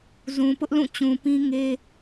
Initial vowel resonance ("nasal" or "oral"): nasal